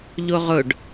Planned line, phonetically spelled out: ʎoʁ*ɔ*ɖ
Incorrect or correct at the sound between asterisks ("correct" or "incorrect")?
incorrect